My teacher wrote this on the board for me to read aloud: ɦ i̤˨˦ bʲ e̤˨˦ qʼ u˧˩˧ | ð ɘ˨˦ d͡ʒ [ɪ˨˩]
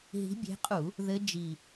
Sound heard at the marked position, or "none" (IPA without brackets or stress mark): i˨˩